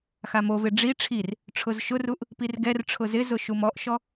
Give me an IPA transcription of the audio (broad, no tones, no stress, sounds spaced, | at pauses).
x a m o v e ɖ͡ʐ i ʈ͡ʂʰ i r | ʈ͡ʂʰ ʊ z ʃ ʊ r u ʔ | p i r ɡ ɛ r ʈ͡ʂʰ ʊ z ɪ z ʊ ʃ u m ɔ ʔ ʃ ɔ